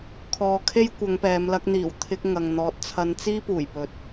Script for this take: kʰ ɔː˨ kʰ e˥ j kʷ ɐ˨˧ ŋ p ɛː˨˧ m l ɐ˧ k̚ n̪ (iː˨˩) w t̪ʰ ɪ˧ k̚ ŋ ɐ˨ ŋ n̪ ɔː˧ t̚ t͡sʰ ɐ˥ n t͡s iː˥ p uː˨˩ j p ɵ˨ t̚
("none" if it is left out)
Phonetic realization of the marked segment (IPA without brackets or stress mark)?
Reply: iː˨˩